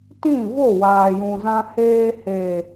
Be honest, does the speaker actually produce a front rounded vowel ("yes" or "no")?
no